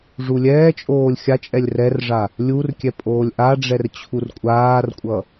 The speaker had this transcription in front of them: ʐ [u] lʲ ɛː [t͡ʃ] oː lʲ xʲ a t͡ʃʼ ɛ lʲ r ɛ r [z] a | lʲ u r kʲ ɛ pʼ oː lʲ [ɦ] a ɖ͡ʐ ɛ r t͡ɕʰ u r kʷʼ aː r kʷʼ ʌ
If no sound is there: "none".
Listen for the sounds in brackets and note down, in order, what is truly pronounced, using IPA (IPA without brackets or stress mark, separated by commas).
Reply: u, t͡ʃʼ, ʐ, ʔ